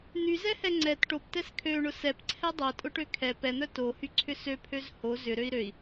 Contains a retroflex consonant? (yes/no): yes